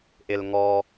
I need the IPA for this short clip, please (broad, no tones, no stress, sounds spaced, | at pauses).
ʔ ɪ l ŋ ɔ